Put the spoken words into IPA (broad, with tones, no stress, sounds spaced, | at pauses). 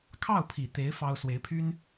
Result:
kʰ ɑ˥˩ ʊ̯ pʰ i˨˩ t̪ e˧˥ ɪ̯ f ɑ˥ ʊ̯ s w e˧˥ ɪ̯ pʰ y˥ n